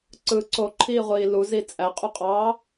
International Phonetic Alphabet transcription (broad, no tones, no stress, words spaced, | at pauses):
ǀɯ ǀoǃʰiːʁʷiː luzi t͡sʼæqʼuqʼɑː